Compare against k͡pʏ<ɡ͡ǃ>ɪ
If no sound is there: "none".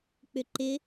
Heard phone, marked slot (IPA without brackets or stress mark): ǃ